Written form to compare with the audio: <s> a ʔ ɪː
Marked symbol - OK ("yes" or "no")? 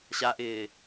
no